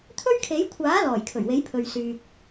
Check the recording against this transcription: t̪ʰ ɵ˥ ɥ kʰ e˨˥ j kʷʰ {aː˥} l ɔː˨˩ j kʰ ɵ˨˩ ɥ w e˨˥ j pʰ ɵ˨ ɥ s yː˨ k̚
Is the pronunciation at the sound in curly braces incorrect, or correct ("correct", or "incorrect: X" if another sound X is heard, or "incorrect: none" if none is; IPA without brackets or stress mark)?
incorrect: aː˨˥